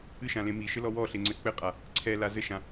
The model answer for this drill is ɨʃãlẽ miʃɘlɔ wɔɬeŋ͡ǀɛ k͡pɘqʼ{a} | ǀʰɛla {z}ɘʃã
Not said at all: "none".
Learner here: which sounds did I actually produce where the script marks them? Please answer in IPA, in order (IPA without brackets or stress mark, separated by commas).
a, z